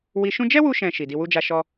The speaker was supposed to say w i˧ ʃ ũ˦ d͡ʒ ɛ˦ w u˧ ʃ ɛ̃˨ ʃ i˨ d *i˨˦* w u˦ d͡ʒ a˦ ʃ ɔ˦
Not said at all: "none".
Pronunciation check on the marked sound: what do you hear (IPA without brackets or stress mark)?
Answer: i˧